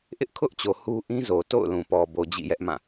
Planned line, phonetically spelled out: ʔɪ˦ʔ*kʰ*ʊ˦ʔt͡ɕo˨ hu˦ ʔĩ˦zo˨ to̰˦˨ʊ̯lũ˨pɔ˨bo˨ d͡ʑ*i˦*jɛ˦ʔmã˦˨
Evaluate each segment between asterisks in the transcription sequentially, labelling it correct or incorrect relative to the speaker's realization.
correct, incorrect: ḭ˦˨

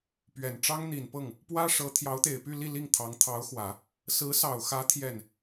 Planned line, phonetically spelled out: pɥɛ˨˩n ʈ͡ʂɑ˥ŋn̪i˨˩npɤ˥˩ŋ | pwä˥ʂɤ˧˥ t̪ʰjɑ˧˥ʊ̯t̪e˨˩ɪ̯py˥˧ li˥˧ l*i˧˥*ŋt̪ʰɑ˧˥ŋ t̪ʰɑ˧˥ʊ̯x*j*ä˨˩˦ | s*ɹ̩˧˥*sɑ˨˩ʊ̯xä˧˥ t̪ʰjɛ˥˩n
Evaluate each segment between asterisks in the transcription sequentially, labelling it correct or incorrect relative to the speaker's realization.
incorrect: i˥˩, incorrect: w, correct

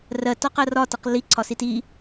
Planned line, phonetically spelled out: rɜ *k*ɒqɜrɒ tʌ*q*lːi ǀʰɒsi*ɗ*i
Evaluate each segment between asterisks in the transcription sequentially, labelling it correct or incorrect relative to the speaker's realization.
incorrect: t, correct, incorrect: t

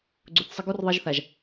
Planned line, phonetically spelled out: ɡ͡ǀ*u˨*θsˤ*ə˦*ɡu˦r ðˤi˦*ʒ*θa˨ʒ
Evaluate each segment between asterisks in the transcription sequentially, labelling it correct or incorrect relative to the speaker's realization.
correct, incorrect: ɪ˦, correct

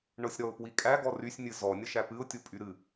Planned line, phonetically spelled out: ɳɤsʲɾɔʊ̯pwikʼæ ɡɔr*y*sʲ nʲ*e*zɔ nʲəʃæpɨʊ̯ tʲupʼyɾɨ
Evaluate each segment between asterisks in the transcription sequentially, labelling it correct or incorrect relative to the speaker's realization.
correct, incorrect: ɨ

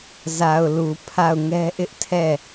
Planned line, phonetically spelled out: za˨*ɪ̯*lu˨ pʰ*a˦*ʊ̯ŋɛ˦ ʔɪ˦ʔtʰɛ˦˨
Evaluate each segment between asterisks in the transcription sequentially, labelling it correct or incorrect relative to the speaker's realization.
incorrect: ʊ̯, incorrect: a˦˨

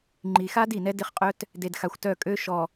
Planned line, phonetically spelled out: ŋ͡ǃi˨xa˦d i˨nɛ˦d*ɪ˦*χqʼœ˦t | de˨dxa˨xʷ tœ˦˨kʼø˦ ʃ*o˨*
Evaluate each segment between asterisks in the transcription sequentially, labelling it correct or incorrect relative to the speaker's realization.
correct, incorrect: ɔ˨

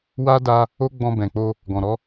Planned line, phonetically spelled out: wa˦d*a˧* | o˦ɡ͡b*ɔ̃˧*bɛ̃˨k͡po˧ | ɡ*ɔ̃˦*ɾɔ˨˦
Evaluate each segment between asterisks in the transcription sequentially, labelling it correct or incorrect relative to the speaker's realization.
correct, correct, incorrect: ɔ̃˨

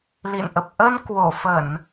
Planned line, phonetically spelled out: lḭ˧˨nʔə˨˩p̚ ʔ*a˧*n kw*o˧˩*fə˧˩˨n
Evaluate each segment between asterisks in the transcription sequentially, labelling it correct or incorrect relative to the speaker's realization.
incorrect: ə˧, correct

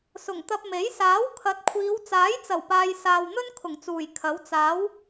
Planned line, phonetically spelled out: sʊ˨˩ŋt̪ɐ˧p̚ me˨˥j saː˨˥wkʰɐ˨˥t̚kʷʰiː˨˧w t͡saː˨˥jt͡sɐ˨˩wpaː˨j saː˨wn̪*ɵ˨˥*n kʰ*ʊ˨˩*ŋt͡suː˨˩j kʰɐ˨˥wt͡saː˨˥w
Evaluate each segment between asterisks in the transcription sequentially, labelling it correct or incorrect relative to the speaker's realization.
incorrect: ɵ˥, correct

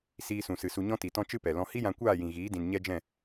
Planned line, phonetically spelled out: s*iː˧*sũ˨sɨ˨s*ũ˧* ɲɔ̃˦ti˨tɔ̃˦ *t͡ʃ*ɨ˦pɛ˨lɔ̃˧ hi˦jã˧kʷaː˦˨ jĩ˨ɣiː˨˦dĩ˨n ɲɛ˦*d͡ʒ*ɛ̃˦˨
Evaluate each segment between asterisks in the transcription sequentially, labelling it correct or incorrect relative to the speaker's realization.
correct, incorrect: u˧, correct, correct

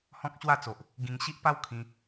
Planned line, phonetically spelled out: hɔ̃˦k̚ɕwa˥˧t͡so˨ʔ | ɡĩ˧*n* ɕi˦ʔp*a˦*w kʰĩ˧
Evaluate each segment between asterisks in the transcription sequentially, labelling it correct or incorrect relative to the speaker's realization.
incorrect: ŋ, correct

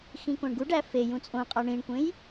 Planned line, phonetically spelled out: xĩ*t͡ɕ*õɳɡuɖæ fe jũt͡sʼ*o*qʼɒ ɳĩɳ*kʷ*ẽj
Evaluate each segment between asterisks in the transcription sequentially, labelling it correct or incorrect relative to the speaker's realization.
incorrect: k, incorrect: õ, correct

